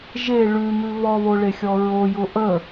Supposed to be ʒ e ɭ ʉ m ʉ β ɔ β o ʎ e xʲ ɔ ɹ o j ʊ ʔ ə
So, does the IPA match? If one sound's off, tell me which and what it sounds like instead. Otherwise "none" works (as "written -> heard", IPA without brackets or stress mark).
ʎ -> ɭ